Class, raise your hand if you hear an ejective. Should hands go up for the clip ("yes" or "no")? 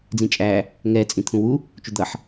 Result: yes